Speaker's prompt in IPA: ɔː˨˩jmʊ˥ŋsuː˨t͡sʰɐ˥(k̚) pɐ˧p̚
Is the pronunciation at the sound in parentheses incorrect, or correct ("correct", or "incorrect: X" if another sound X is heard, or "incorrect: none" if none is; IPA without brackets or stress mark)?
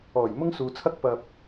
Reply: correct